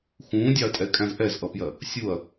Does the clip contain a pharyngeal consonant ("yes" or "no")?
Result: no